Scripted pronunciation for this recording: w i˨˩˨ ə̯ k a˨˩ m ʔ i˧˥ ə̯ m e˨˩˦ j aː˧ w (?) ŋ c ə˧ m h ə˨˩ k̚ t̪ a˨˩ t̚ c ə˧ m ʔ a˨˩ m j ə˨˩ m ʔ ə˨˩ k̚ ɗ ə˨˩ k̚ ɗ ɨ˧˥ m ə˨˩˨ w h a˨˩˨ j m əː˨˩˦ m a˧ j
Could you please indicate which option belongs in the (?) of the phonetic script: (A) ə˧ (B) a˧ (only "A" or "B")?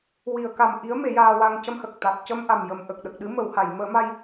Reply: B